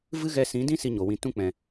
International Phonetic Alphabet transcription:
v ɨ˦ ɣ ɛ˧ s ĩ˨˦ d ĩ˦ s i˧ ɲ o˨ w ĩ˨ t ũ˧ k͡p ɛ̃˨

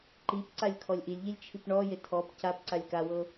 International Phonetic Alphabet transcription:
ǃ i p ǀ a lʲ kʰ ɔ lʲ ʔ i lʲ ʎ i lʲ t͡ʃʰ i p ɳ ɔ j e tʰ ɔ p c a p ǀ a lʲ k a w ɤ

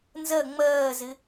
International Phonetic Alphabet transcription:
n z ɜ ŋ͡m ɜː z ɪ

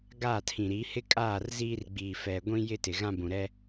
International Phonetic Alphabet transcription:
ɡ aː˦˨ tʰ ĩ˨ ɾ iː˨˦ h ɪ˦ kʼ aː˦˨ r z iː˦ r ɡ͡b iː˨ f ɛ˨ ɡʷ ĩ˦ j ɪ˦ t ɪ˨ ɣ ã˦ b ũ˨ ɾ ɛ˦

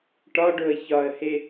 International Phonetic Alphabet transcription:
ʈ ɒ ɖ o ə̯ ç ɒ ə̯ h e

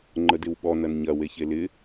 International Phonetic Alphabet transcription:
ŋ͡ǃ ə d ɪ w ɓ ɔ n ɐ n ɲ ɐ w e ç e l ɪ

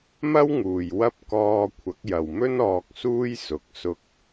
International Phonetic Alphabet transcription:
m ɐ˥ w ŋ uː˨ j w ɐ˥ p̚ k ɔː˧ kʷʰ ɐ˨˥ k̚ j ɐ˨ w m ɵ˥ n ɔː˧ k̚ s uː˥ j s ʊ˨˥ k̚ s ʊ˧ k̚

